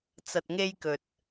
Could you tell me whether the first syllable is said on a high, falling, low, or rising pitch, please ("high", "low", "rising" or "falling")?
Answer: low